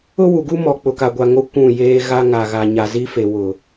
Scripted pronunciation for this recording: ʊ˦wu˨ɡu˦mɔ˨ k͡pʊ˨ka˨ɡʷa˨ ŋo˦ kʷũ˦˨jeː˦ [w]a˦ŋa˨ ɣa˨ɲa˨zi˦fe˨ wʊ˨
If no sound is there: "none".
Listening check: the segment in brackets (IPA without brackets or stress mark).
ɣ